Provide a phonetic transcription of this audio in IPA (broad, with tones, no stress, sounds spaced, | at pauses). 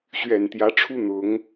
ɕ ɥ ɛ˨˩ n t̪ j ä˧˥ ʈ͡ʂʰ u˥ n̪ ʊ˧˥ ŋ